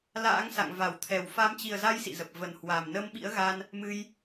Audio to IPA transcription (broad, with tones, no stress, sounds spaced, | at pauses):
l a̰ː˧˥ ŋ s a̰˧˨ ŋ v a˧˩ w t̪ʰ ɛ˨˩ w f a˨˦ m t͡ɕ i˨˩ ə̯ z a˧ j s ḭ˧˨ z ə˨˩ p̚ v ə˨˩ n h w a˨˩ m n ə˧ m ɓ ḭ˧˥ ə̯ ɣ a˧ n | m ɨ˧ j